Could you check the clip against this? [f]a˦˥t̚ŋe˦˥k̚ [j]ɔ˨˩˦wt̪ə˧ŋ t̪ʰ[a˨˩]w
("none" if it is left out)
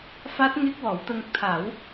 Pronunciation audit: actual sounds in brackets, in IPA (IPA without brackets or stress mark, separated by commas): f, w, a˨˩˦